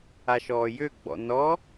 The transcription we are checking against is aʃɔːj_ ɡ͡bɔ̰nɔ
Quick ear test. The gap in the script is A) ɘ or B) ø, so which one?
B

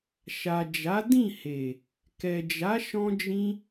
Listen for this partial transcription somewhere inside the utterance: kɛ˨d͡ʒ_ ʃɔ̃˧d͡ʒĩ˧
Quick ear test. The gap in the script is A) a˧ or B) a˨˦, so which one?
B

